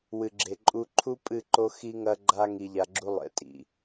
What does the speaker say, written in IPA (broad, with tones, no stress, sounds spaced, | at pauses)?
w ɨ˨ ɡ͡ǁ e˨ ǃʼ u˧ ǃʰ u˦ pʼ ɨ˦˨ ǃ o˦ x i˦ ŋ ɐ˦ ɡ͡ǃ a˦ ŋ i˧ ʎ a˧ ɡ͡ǁ u˦ lˠ ḛ˧ tʼ ḭ˨